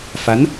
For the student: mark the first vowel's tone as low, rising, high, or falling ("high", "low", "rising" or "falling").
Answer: rising